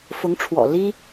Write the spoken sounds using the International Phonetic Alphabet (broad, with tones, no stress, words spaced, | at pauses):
fʊ˧˥ŋʈ͡ʂʰwɔ̰˨˩ li˥